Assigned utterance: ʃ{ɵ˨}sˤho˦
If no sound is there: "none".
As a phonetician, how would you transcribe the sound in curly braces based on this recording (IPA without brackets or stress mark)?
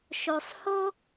o˨